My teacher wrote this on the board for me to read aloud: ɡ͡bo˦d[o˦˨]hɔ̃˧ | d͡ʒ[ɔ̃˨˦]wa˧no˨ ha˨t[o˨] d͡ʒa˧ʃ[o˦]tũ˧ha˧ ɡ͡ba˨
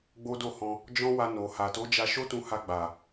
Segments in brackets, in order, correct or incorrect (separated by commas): correct, incorrect, incorrect, correct